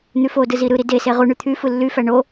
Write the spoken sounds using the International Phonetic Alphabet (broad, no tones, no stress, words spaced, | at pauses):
n̪yfodɯ ziɾɯɾi dese ʁuɳy t̪ʰyfɯ lːyfæ ɳo